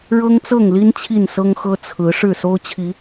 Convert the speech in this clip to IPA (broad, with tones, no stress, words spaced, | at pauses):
ɻɤ˦ŋt͡sɤ˥˨ŋli˦n t͡ɕʰi˥˨nsɤ˦ŋxɤ˦ t͡sʰɹ̩˨˦ ʂɻ̩˥˨so˦ʊ̯t͡ɕʰi˨˦